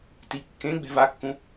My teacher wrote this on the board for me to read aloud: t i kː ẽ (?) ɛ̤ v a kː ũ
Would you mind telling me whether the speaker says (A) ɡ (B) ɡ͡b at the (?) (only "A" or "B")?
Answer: B